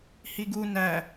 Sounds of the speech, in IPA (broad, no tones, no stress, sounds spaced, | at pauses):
h i ɡ u n æ